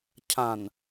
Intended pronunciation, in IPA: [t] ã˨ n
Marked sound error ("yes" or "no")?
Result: yes